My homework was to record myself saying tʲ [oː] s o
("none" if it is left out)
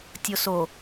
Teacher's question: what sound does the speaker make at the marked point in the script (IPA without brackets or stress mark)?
o